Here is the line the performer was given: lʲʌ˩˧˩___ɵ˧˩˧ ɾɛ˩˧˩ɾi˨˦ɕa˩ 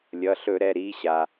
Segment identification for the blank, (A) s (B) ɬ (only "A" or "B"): B